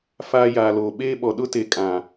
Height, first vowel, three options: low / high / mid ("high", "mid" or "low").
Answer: low